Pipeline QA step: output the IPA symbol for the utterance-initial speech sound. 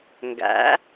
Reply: ŋ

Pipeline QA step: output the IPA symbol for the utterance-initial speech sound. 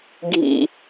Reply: ɡʱ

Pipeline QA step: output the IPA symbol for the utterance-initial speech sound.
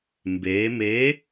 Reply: m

